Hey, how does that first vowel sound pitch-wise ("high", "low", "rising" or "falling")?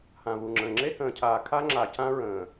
low